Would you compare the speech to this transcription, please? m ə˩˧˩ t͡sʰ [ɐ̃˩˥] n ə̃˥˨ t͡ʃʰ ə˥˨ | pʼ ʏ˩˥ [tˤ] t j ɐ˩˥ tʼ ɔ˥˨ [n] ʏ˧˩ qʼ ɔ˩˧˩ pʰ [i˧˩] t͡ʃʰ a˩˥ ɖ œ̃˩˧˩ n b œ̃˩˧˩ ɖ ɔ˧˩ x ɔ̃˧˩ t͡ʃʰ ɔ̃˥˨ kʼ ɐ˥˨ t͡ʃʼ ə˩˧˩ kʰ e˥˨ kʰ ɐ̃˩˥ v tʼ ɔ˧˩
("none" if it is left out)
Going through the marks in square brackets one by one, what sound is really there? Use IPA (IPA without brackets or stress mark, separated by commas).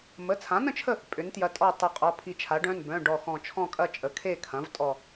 ã˩˥, n, tˤ, i˧˩